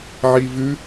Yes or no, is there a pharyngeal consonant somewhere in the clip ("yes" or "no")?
yes